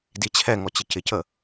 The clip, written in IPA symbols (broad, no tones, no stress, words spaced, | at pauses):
dit͡ɕʰɛŋɔ t͡ɕɪcɪcə